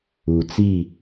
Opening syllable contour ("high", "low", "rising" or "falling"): low